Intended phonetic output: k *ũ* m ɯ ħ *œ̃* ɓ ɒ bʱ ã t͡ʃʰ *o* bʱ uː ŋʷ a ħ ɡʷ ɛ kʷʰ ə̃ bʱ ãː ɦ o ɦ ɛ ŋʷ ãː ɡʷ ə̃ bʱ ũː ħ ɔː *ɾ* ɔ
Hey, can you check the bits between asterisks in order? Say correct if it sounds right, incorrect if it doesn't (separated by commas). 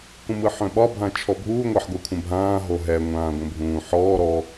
correct, correct, incorrect, correct